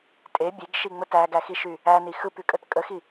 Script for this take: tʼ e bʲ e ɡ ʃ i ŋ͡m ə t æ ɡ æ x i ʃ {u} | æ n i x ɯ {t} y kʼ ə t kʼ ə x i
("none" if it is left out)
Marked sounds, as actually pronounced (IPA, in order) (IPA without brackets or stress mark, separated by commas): y, p